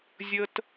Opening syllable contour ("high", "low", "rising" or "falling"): high